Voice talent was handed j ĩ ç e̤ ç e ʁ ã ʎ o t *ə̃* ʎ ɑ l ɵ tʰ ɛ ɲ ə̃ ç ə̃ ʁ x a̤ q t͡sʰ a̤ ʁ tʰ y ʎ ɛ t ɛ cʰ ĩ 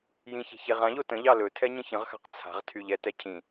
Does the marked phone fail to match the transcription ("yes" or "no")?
no